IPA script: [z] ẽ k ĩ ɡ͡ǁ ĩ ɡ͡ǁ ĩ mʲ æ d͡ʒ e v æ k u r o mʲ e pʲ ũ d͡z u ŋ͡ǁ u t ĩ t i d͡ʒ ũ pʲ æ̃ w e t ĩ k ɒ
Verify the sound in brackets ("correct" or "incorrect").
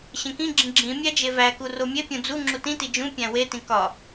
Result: incorrect